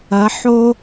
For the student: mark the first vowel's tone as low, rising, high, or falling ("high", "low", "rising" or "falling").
rising